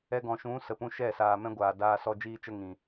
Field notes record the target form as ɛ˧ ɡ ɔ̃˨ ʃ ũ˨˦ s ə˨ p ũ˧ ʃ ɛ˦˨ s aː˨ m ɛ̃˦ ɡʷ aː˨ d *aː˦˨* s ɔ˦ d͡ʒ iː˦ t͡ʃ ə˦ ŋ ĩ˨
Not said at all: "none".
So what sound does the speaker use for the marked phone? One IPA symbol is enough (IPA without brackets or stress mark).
aː˧